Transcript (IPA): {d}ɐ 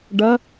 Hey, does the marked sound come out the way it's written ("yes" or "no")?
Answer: no